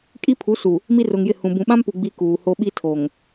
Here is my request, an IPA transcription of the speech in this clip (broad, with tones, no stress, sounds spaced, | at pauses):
kʼ i˦ pʰ u˨˦ s u˨ | m i˦ r ʊ˨ ŋ j ɪ˦˨ h ũ˨ b ũ˨ ɓ ã˦ m p u˨ ɡ͡b i˦ k uː˨ h o˦ ɓ i˦ tʰ o˨ ŋ